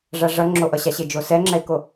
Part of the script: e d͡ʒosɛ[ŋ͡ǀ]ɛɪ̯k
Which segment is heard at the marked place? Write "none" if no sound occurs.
ŋ͡ǁ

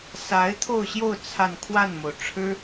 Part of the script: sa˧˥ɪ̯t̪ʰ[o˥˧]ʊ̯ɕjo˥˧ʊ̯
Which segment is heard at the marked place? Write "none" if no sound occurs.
o˥˧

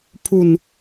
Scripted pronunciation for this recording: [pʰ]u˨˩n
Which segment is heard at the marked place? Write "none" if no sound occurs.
pʰ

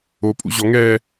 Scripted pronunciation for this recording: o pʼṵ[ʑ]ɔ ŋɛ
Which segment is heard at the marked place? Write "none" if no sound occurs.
ʑ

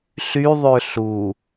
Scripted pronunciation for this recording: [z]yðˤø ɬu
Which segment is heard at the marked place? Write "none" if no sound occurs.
ɬ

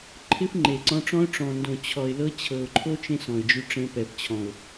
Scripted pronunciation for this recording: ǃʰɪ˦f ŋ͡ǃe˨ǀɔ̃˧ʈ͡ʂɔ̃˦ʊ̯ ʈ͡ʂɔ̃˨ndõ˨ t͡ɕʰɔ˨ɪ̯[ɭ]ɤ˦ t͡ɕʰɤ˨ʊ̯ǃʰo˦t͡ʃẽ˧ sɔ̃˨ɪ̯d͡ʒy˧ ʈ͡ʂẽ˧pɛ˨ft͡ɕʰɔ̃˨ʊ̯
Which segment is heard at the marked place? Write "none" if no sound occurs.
l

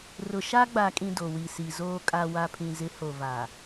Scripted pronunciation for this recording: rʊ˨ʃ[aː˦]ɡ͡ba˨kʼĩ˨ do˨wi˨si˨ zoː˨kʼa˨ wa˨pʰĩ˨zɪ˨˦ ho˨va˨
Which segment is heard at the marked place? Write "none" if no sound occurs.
a˦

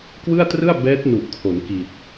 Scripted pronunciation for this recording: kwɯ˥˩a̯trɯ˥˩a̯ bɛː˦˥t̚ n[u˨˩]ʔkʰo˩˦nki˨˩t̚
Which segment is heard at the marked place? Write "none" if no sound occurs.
u˨˩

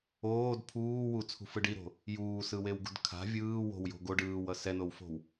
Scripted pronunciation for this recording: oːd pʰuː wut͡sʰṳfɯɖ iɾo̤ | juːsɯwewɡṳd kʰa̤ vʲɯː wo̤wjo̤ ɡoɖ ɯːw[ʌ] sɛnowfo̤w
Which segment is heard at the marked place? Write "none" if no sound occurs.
ʌ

